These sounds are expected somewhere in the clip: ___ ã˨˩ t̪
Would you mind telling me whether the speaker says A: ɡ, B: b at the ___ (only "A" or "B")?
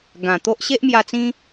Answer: A